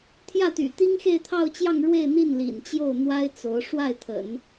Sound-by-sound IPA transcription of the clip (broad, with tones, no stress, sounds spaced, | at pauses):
t̪ʰ j ä˥˩ t̪ y̰˨˩ t̪ i˥ ŋ x e˥˧ ɪ̯ t̪ʰ ɑ˥˧ ʊ̯ t͡ɕ j ɑ˥˧ ŋ ɻ w e˥˧ ɪ̯ n̪ i˥˩ n l ḭ˨˩ n t͡ɕ j o˥˩ ʊ̯ n̪ w a˥ ɪ̯ t͡s o˧˥ ʊ̯ ʂ w a˥˩ ɪ̯ t̪ʰ ə̰˨˩˦ n